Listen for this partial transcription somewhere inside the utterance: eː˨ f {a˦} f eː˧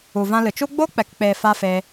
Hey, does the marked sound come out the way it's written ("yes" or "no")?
yes